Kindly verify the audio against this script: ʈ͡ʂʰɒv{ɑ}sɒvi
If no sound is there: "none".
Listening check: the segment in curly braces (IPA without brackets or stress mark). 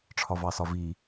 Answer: ɑ